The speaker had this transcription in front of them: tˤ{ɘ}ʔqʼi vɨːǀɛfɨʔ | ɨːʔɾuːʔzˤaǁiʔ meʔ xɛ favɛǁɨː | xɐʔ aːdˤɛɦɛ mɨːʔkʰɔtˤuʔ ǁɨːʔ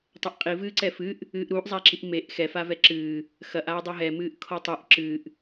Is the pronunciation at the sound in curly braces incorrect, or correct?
correct